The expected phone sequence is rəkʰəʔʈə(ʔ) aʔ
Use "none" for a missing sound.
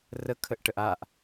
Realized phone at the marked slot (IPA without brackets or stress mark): ʔ